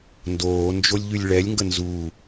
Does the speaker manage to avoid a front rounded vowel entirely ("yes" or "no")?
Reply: no